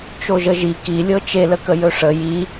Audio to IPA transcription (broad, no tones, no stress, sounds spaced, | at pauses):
t͡ʃ o ʒ ə ʒ i k i lʲ ɤ t͡ʃ e l ə k ə j ɵ ʂ ə j i